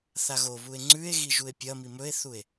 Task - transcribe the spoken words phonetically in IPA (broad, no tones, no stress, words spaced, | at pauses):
θaɣoβue̯ ŋ͡ǀʉe̯ɣi ʒue̯pʲɐmi mɵe̯θue̯